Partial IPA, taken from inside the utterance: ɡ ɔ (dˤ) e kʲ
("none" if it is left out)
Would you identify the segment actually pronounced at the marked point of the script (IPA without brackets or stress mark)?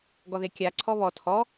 ð